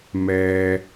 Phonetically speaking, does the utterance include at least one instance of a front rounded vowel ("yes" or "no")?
no